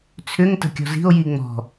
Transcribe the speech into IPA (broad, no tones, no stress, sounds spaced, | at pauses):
t͡sʰ ʏ ŋ t ə̤ kʲ ɔ̤ z i̤ o̯ j i ŋ͡m ɔ̤